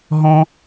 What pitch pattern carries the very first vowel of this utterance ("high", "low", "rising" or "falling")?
high